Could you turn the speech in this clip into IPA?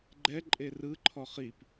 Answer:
ɡ͡ǃɛ ǃʼerɯǃʰɔ χip

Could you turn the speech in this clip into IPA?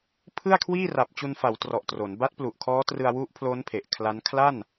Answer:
pʰɯ˥˩a̯kʰwiː˥˩ ra˨˩p̚t͡ɕu˧nfa˩˦w trɔ˨˩ʔtro˩˦n ba˦˥t̚plu˨˩ʔkʰɔː˦˥trɯ˧a̯ wu˦˥ʔpʰlo˦˥n pʰe˨˩ʔkʰla˦˥n kʰla˥˩n

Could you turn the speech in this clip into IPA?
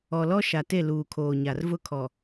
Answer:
ɔ˨lɔ˦ʃa˨te˦˨ luː˨kʰoː˨ɲa˨r vʊ˦kʰɔ˨

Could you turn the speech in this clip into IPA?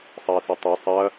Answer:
sˤɐːsɐtˤɐ sˤɐ

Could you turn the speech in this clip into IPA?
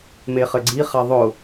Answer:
meχɘɡ͡ǀi χaðˤʊ

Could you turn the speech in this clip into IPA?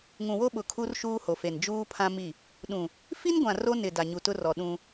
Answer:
ŋũ˨wo˦ɓʊ˨ kʰu˦rʃuː˦ho˨fe˨n d͡ʒuː˦pʰã˦mi˦˨ | ɗũ˨ | fi˦nɡʷã˨ ro˦nɪ˨ da˨ɲu˨tʊ˦rɔ˨ ɗũ˦

